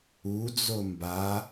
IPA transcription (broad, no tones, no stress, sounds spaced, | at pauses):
u d͡z o m b a